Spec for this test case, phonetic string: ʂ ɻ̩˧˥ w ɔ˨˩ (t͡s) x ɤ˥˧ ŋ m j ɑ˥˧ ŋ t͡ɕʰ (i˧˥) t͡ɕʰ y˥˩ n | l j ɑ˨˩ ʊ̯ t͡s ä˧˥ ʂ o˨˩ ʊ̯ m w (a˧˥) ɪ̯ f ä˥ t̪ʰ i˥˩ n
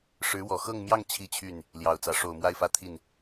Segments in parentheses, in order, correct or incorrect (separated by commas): incorrect, incorrect, incorrect